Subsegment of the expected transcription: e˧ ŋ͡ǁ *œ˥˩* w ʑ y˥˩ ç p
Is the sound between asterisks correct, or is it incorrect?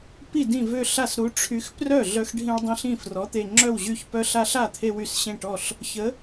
correct